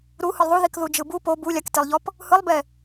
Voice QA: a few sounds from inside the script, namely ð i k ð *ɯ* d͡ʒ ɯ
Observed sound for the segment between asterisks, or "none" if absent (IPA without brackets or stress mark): u